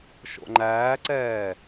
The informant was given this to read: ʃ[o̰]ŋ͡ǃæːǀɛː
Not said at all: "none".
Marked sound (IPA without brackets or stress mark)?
o̰